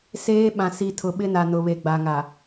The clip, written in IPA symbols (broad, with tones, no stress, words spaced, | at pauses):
seː˦ ɓã˨ si˨tʰʊ˨ɓɪ˦na˨ nʊ˨βe˨ɡ͡ba˨ŋa˨